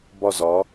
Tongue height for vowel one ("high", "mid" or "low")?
low